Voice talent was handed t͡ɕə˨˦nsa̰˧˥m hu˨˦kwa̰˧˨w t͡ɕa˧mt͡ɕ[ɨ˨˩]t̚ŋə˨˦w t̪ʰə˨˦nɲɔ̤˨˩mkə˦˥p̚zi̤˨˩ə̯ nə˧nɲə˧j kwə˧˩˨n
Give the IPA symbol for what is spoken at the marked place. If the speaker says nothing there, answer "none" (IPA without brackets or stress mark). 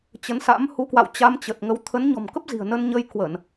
ə˨˩